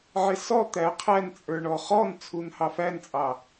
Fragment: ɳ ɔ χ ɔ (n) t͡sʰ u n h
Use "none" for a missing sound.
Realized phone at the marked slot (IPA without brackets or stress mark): n